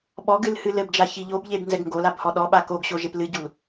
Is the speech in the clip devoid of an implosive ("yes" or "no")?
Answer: no